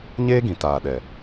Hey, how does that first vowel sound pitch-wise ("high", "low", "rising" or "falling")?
high